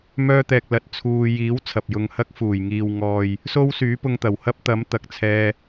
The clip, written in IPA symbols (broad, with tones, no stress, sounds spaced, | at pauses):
m œː˥ t̪ ɛː˧ k̚ l ɐ˧ t̚ t͡sʰ uː˧ j iː˨˥ w t͡sʰ ɐ˨ p̚ j ʊ˧ ŋ h ɐ˥ k̚ f uː˨˩ j ŋ iː˨ w ŋ ɔː˨ j | s o˥ w s yː˨˥ p ʊ˧ ŋ t̪ ɐ˨˩ w h ɐ˥ p̚ t̪ ɐ˨˥ m t̪ ɐ˨ k̚ t͡sʰ ɛː˧